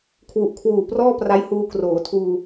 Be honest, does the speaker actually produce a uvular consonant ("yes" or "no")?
no